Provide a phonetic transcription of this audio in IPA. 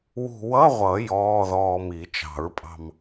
w ṳ˧ w ʌ˧˥˧ ʁʷ ʌ˨˩˦ j ɔː˧˥˧ ð ɔː˧ m i˨˩˦ t͡ʃ ɑ̤˨˩˦ ɹ pʼ ɑ̤˧ m

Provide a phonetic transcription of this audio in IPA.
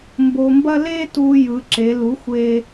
m b o˧ m b ɐ˥ l e˥ t u˧ j ɯ˩˧ ǁ e˩˧ l u˩˥ xʷ e˧

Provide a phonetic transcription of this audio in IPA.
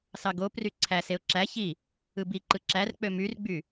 s ɑ ɡ o p r y ǀʰ æ s e ʊ̯ ǁ æ ç i | ɯ b i ǃ ɯ ǁ æ r k͡p ø m y r ɡ͡b y

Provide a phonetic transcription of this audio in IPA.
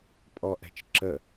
pʼ ɔ ʔ ɛ̤ t͡ʃ ǁ ə

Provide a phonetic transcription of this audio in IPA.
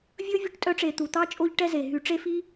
vʲ ɵ˦ vʲ o˦ ʈ tʼ œ˦ ʈ͡ʂ e˨ t̪ u˩ t̪ ɑ˥ t͡ʃʼ o˦ ʎ ʈ ɛ˦ z e˩ ɦ y˨ ʈ͡ʂ e˦ f i˥

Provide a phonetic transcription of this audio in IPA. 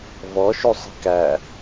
v ɔ ʃ u sˤ i̤ k æ

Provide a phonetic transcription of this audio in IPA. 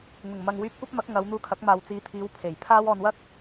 ŋ ʊ˨˩ ŋ m ɐ˨ ŋ w yː˧ p̚ kʷ ɐ˥ p̚ m ɐ˨˥ k̚ ŋ ɐ˨˧ w n̪ uː˧ kʰ ɐ˨˥ k̚ m aː˨ w t͡s iː˨˧ t̪ʰ iː˨˧ w pʰ e˨˩ j pʰ aː˥ w ɔː˧ n w ɐ˥ k̚

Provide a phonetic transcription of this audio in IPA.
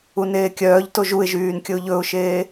u n eː kʲ œː ʎ t o ʒ u ɪ̯ ʒ yː n kʲ ɵ ʊ̯ ʎ ɵ ʊ̯ ʃ eː

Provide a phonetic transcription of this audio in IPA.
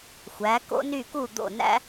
xʷ æ˩˥ k o̰˥ n y˥˩ k u˥˩ d̪ o̰˥˩ n æ̰˥

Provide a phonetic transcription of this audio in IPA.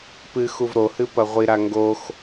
p ɨ x u v ɾ o h ɨ p ɐ ʁʷ i ɾ a ŋ ɡ o x

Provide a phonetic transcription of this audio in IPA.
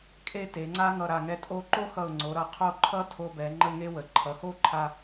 kʼ e˥ t e˩˧ ŋ͡ǀ a˥ ŋ ʌ˧˩ ɾ a˧˩ ŋ ɛ˧ tʼ o˧ ǃ o˥ x ʌ˧˩ ʊ̯ ŋ͡ǀ o˩˧ ɾ ʌ˩˧ qʰ o˥ ǃʰ ʌ˥ tʰ o˧ b ɛ˩˧ ŋ͡ǃ ə˥˧ ŋ e˥ w ə˩˧ ǃʰ ʌ˩˧ x o˥˧ ǃʰ a˧

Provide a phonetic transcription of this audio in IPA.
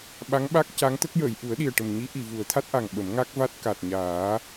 ɓ a˧˥ ŋ ɓ a˦˥ k̚ c a˧˥ ŋ t̪ ə˦˥ k̚ j əː˨˩˨ j ʔ u˨˩˦ ə̯ ɗ i˨˩ ə̯ ʈ ə˨˩ m ɲ i˧˥ ʔ i˨˩˨ v u˨˩˦ ə̯ t̪ʰ a˦˥ t̚ ʔ a˨˩ ŋ ɓ ə˨˩˦ m ŋ a˦˥ k̚ v a˦˥ t̚ k a˨˩ t̚ ɲ aː˨˩˦

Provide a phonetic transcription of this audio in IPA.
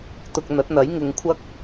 t̪ ʊ˧ k̚ n̪ ɐ˨˥ t̚ n̪ ɐ˨˥ j ŋ ɪ˨˧ ŋ kʷʰ ɐ˥ k̚

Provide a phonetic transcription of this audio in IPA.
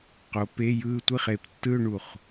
q o˨˦ p e˧˥˧ j ɯː˥˧ tʷ i˥˩ χ e˩ p tː ɯ˥˧ ʊ̯ ɳ u˧˩ χ

